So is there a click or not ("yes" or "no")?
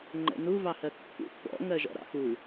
yes